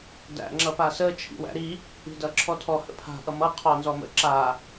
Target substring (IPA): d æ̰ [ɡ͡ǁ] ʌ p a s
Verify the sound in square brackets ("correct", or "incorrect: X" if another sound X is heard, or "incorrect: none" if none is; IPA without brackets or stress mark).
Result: incorrect: ŋ͡ǁ